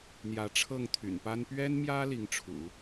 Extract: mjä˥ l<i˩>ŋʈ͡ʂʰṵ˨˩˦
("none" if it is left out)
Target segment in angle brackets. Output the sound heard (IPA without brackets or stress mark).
i˧˥